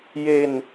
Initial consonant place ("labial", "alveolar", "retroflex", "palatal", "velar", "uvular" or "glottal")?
palatal